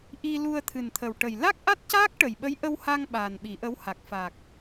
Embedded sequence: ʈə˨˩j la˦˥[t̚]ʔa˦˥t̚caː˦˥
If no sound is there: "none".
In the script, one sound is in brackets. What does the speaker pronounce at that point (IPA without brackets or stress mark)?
k̚